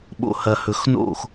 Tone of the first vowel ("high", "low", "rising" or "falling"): low